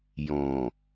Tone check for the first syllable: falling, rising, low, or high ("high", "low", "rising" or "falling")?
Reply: low